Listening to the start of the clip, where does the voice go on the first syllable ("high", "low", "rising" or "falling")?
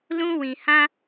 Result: high